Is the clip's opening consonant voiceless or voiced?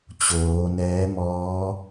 voiceless